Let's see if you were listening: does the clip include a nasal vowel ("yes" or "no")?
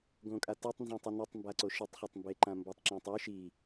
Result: yes